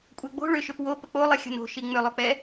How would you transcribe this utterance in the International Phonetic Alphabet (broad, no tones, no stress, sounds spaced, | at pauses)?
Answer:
kʷʼ ɛ ɡ͡b o̤ ɭ ʏ ʃ ʏ p w o p ə k͡p o lˠ i xʲ ə̤ n o̤ ʃ i ŋ͡m ʏ lˠ o k͡p ɛ